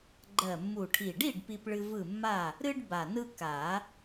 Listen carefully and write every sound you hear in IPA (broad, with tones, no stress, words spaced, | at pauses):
ɡ͡ǃɜ˨˩mːu˨˩ʈʰi˨˩ɖi˥˨ɖ pi˦pɭɨ˦vɯ˥˨ mːa˥˨ | ɾɨ˦ɖ ba˨˩nɯ˦ ka˨˩˦